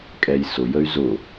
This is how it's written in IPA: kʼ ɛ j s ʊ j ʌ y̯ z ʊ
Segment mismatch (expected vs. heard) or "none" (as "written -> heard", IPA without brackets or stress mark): ʌ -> ə